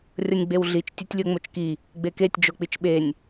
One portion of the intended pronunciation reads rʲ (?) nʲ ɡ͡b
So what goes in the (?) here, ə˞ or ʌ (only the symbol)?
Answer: ʌ